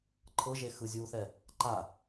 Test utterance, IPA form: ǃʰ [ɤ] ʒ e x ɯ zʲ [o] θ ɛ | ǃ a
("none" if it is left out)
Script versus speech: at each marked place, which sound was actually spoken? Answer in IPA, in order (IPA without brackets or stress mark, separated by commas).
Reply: ɤ, u